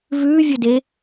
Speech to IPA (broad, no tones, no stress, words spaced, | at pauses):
vʉːvʲɵdeː